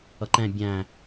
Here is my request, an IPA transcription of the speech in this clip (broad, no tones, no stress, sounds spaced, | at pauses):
ʌ ǃ ɛ̃ bʲ æ̃